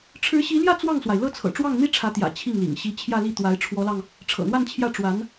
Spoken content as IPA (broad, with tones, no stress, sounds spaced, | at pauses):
ʈ͡ʂʰ ɻ̩˧˥ ɕ i˧˥ l j ä˥˧ t͡s w ɑ˥˩ ŋ s w a˩ ɪ̯ l ɤ˥˩ t͡sʰ ɤ̰˨˩ ʈ͡ʂ w ɑ˥˩ ŋ n̪ i˥ ʈ͡ʂʰ ä˧˥ t̪ j ä̰˨˩ t͡ɕʰ i˥˩ ŋ l ḭ˨˩ ŋ ɕ i˧˥ t͡ɕʰ j ä˥˧ l i˥˩ t̪ w a˧˥ ɪ̯ ʈ͡ʂʰ w ɔ˧˥ l ɑ˧ ŋ | ʈ͡ʂʰ ɤ̰˨˩ n̪ w a˥˧ n t͡ɕʰ j ä˥˩ ʈ͡ʂ w a˧˥ n